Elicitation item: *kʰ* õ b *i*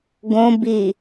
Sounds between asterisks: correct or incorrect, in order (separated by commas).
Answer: incorrect, correct